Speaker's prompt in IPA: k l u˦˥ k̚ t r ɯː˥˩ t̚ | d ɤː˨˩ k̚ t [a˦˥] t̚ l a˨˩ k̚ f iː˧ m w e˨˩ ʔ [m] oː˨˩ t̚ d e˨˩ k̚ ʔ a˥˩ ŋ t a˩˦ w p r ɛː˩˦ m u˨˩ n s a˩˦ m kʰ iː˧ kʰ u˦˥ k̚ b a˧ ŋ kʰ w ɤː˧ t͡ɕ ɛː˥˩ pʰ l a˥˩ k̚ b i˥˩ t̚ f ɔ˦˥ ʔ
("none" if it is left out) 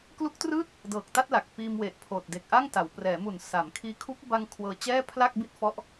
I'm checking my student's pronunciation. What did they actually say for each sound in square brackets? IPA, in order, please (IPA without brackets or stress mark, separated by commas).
a˥˩, pʰ